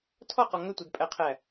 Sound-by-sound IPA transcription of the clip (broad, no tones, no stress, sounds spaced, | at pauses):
tʰ ɔ q ɔ ŋ ʏ tʷ ɛ d pʼ æ qʰ æ